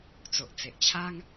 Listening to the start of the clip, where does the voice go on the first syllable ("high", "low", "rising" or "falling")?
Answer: low